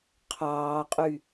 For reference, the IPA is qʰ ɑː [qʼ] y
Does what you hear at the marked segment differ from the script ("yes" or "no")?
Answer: no